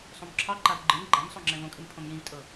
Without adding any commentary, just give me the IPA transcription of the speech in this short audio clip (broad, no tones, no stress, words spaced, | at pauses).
sˤõmǁʰɑǃav ɡ͡ǃɨm ɡ͡ǃamsˤo ŋ͡ǁɛ̃võkʼɨm pʰõmjĩvtʼɤ